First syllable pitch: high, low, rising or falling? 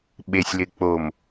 low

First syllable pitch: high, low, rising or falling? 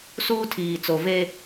high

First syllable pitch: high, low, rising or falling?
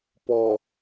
low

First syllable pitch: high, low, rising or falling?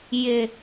low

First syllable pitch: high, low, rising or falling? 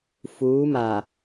rising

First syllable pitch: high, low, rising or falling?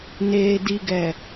low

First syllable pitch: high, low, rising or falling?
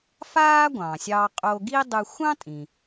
high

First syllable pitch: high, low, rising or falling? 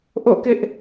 falling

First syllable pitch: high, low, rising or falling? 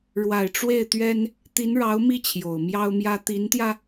low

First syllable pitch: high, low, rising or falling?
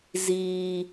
high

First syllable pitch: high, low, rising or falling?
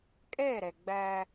falling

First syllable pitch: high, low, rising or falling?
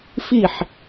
falling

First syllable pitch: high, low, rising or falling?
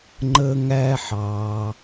high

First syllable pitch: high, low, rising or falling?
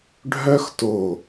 high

